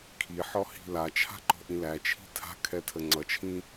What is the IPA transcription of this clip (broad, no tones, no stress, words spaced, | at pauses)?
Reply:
kʰiħɔhi̤ lat͡ʃʰa̤ǃɔ̤ʔĩ læt͡ʃʰi̤ tʰa̤kʰɛtʰə ŋ͡ǀʌt͡ʃʰĩ